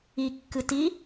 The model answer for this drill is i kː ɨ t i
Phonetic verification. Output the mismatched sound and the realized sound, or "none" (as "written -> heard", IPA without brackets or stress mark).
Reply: none